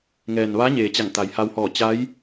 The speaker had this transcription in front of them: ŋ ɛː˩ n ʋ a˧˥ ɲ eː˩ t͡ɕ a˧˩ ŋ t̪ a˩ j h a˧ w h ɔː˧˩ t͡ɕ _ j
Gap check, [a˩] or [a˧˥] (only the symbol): a˧˥